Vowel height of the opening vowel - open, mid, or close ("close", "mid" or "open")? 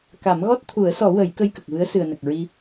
open